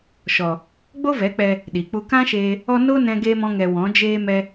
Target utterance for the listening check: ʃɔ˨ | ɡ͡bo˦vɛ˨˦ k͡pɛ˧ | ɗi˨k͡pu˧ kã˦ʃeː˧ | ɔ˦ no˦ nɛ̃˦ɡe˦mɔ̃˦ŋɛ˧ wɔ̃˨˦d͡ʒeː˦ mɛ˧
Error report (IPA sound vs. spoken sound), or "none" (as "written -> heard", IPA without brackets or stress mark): none